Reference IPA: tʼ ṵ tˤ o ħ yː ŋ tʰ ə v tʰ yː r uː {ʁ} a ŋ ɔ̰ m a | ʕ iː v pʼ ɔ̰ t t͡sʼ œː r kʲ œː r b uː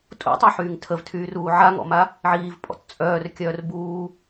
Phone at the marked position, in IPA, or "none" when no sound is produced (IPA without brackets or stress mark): ʕ